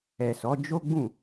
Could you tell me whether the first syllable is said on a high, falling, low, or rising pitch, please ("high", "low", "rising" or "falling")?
low